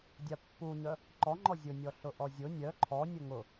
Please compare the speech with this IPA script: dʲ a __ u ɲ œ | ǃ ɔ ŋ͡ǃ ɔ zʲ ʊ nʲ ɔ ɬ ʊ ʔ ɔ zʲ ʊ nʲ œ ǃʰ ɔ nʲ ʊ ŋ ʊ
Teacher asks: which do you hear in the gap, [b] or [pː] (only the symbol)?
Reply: pː